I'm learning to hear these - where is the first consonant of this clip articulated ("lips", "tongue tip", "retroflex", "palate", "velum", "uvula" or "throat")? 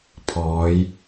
lips